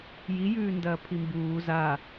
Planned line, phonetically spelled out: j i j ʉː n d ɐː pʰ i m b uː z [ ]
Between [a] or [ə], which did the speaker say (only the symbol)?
a